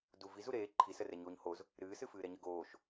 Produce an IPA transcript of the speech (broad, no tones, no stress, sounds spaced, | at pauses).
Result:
d u v i z u ɾ eː ǃʰ i s ə r ɛ ɲ oː ɲ h o z | ɾ ɨː s ɨ f ɨː ɾ ɛ ɲ ə ɡ oː ʃ